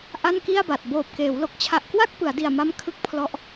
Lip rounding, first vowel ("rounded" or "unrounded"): unrounded